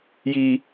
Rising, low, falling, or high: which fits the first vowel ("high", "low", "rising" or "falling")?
low